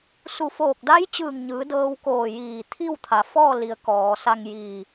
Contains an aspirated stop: yes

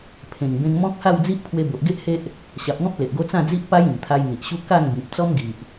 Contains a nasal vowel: yes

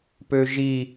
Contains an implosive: no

